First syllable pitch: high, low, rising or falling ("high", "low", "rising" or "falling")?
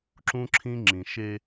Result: high